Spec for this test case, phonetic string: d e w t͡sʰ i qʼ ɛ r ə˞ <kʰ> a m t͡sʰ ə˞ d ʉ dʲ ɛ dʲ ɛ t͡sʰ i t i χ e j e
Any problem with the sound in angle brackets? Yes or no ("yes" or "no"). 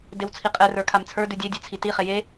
no